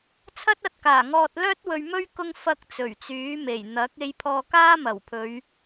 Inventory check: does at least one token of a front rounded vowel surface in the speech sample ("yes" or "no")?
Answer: yes